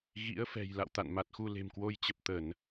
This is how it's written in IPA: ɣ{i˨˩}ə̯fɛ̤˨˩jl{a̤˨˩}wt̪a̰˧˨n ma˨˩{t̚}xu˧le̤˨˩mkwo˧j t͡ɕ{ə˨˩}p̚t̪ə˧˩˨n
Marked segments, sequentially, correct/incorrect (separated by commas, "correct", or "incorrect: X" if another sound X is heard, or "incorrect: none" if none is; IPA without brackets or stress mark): incorrect: ḭ˧˥, incorrect: a̰˧˨, correct, correct